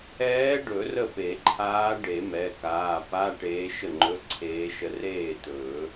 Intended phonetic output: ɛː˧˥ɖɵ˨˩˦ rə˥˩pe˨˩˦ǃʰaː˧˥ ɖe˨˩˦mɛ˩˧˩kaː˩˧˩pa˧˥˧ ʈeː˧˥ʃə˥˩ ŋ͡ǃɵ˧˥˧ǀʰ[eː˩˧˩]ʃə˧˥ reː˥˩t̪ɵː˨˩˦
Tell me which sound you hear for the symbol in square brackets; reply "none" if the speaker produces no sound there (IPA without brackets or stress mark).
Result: eː˧˥